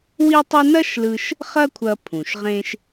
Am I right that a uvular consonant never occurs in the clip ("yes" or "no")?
no